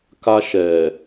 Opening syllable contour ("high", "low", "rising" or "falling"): high